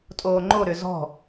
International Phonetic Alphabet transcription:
tʼoːŋ͡ǃoɾʏ zɔ̤

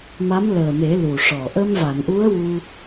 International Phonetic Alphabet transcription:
ma˧˥mləː˨˩me˨˩˦ lu˨˩ʂɔ˨˩ ʔə˧mva˨˩˨nʔu˧˥ə̯ wu˧

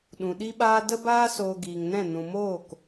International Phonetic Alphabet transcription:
ɗũ˨ɗi˦ɓaː˦ də˦baː˦ soː˧ɡiː˨ŋnɛ̃˦˨ nũ˨moː˦˨k

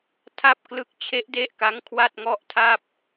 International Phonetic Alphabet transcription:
tʰa˥˩p̚klɯ˦˥k̚ t͡ɕʰe˦˥ʔde˦˥ʔka˦˥ŋ kʰwa˥˩t̚ŋɔ˥˩ʔtʰa˥˩p̚

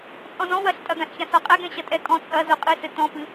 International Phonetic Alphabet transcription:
t͡sʼɔ̃zɔ̃ wɐɬ tʼɐɡãɬçã sɔqʼɛɡɛ̃ ɕɐtʼɛ kʼɔ̃ t͡sʼɐ zoqʼɨsɘ tɔ̃pɨ

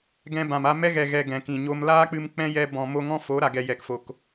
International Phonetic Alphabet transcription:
ɡɛ̃˧ bã˨ma˧mɛ˦ ɣɛ˨ɣɛ˨ ɡɛ̃˨kĩ˨ɲo˧m laː˦k͡pɨ˧m k͡pɛ̃˦jɛ˧ bɔ̃˨mo˧ŋɔ̃˦ fo˨˦ɾa˨ɡɛ˨ jɛ˨kfo˨k

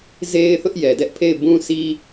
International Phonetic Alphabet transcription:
ze˦ɪ̯ θʊ˦ʔjɛ˨dɛ˦ʔpʰe˦˨ɪ̯ bũ˦sʰi˦

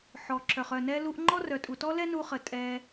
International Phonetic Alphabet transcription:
ħɔ˨ǁʰœ˨χ œ˦˨nɛ˦lu˦ʔ ŋ͡ǃɔ˦rœ˨tʼu˨tɔ˦ lɛ˦nu˧χə˨ tʼɛ˧

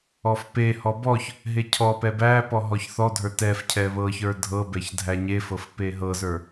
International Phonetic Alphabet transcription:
ɔfpehɔ bɔç | ɦecʰɔpɛ bæpɔ ɦɔçθɔdʱə˞ tɛf cʰɛβɤçə˞ dʱɤbɛç dʱæɲefɤf peɦɤzə˞

